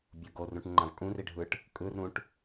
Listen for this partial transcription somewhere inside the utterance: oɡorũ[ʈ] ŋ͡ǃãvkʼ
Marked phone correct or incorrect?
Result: correct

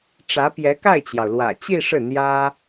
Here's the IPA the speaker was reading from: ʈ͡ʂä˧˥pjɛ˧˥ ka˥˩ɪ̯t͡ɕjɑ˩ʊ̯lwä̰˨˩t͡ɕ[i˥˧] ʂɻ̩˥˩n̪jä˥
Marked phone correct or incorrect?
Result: correct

